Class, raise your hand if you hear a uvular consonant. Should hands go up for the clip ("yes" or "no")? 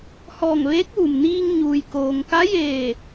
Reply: no